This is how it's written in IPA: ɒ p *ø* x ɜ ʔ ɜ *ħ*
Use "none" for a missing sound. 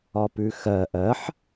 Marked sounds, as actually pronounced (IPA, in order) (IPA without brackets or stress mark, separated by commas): ʉ, ħ